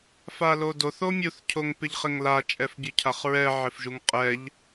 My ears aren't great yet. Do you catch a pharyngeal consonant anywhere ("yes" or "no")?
yes